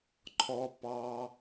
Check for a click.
present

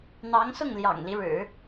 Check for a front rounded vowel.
absent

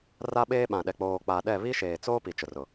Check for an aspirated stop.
absent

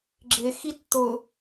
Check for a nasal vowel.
absent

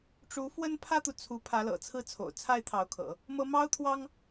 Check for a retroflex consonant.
present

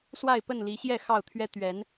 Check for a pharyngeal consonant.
absent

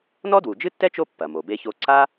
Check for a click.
present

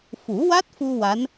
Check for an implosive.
absent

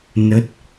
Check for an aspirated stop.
absent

